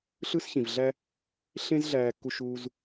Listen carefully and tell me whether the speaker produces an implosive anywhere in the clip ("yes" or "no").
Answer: no